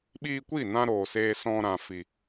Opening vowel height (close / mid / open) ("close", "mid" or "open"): close